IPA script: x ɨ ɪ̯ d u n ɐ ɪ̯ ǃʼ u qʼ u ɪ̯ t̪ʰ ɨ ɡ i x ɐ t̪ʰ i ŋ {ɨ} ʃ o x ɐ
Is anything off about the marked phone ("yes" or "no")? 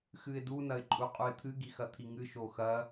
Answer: no